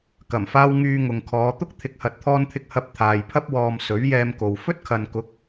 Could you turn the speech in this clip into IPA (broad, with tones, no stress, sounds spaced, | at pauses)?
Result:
k ɐ˨˩ m f aː˧ w ŋ yː˧ ŋ ʊ˨ ŋ kʰ ɔː˨˧ t̪ ʊ˥ k̚ t̪ʰ ɪ˨˥ k̚ h ɐ˨ t̚ t̪ʰ ɔː˧ n t̪ʰ ɪ˧ k̚ h ɐ˧ p̚ t̪ʰ aː˨ j pʰ ɐ˧ p̚ w ɔː˨ m s ɵ˨˥ ɥ j ɛː˧ m k o˨ w f ɵ˥ t̚ kʰ ɐ˨ n k ʊ˨˥ k̚